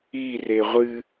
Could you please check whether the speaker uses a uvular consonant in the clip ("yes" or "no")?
yes